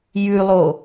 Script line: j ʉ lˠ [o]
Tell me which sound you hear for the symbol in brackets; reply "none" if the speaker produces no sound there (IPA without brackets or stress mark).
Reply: o